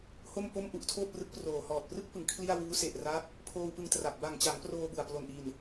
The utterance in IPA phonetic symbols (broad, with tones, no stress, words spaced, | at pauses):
ho˥˩mpo˥˩mʔu˦˥ʔ tʰoː˥˩p̚rɯ˦˥k̚proː˨˩ hɔː˨˩t̚prɯ˥˩k̚pɯ˩˦ŋ kʰli˥˩a̯ wuː˦˥se˨˩ʔra˦˥k̚ | pʰoː˧wpɯ˧ŋtra˨˩p̚ ba˨˩ŋt͡ɕa˩˦ŋ proː˧bu˨˩a̯plo˨˩n ʔi˨˩n